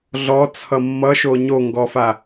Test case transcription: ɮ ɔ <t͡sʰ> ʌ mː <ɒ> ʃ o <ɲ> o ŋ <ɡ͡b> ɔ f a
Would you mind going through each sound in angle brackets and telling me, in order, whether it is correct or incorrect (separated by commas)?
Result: correct, incorrect, correct, incorrect